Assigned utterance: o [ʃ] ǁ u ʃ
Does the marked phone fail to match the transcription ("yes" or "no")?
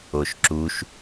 no